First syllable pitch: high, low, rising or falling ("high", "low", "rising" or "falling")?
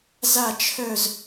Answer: falling